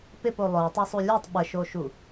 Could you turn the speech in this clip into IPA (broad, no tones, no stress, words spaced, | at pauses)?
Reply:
pɪpo lˠœwtˤosˤu lʲœtˤ ɓəʃoʃu